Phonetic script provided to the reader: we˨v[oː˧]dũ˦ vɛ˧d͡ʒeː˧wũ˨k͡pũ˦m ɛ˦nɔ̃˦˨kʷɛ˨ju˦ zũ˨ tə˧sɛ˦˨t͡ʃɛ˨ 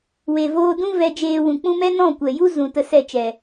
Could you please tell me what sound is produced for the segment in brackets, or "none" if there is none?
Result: oː˧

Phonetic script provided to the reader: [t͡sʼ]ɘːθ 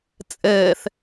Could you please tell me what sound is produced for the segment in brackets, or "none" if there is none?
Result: t͡sʼ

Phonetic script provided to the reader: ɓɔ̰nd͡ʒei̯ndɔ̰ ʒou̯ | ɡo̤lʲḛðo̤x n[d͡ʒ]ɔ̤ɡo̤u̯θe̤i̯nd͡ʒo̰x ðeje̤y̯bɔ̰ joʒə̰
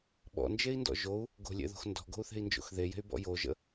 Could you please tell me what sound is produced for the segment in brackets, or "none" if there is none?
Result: d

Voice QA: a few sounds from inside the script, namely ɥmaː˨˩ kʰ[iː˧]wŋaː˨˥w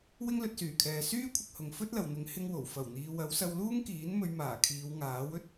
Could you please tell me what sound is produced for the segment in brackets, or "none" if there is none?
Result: iː˨˧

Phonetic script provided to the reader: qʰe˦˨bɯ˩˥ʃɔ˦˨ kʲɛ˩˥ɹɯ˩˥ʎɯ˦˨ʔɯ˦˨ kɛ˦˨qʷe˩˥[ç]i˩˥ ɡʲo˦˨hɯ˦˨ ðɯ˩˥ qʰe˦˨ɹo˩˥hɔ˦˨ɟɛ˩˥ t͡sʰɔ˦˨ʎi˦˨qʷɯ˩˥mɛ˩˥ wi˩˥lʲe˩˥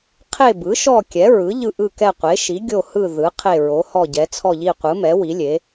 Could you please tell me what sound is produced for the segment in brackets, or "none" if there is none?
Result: ʃ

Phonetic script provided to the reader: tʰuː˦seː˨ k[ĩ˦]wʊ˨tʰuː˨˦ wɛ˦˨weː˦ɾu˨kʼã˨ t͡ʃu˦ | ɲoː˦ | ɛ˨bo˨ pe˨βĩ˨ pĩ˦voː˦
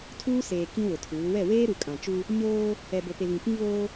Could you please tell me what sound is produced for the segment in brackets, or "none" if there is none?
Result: ĩ˦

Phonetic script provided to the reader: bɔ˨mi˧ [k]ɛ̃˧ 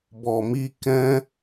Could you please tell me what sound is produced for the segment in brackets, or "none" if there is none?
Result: k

